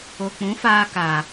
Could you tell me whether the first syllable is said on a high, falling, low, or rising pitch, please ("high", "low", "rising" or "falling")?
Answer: low